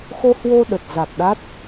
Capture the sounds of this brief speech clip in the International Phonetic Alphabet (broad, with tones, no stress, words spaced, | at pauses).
xo˧hwo˧ ɗə˨˩t̚ za˨˩k̚ɗa˦˥t̚